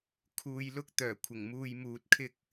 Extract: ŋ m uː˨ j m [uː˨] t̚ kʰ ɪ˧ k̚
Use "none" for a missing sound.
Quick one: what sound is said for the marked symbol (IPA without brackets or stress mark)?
uː˨